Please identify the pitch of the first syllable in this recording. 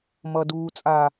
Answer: low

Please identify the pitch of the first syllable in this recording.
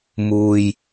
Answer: low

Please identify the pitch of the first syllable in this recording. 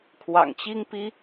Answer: low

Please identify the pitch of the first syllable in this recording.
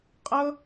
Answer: high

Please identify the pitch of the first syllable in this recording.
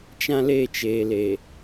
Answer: high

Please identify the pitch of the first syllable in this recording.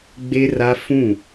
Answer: high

